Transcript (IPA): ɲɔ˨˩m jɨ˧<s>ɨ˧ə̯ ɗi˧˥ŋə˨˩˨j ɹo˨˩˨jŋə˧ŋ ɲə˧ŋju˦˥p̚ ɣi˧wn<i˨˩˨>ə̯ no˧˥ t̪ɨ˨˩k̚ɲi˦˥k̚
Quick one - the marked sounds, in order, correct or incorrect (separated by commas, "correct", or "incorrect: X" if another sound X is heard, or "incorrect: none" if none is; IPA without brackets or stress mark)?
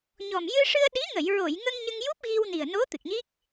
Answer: incorrect: ʂ, incorrect: i˨˩